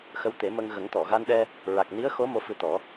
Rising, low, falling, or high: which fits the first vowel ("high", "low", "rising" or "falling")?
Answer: rising